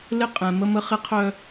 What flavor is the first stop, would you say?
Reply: ejective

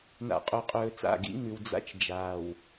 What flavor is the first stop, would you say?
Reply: ejective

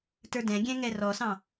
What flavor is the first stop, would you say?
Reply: plain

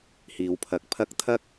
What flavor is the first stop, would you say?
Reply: aspirated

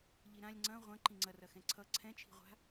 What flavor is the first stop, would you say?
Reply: click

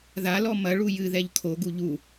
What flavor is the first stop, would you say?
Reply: aspirated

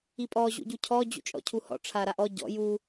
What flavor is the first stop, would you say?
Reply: ejective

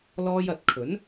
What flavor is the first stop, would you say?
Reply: plain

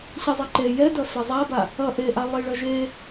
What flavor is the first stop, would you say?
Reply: click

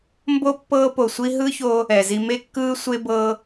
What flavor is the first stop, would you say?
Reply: plain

